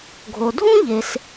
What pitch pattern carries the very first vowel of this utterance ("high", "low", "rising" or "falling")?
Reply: low